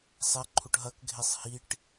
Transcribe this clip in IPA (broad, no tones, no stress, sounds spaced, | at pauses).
sˤ ɛ ǃʰ u ʈ ɦ ɐ k ɡʱ e sˤ h i ʈ